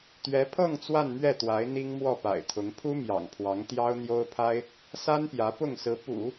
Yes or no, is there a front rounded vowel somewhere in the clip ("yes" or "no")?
no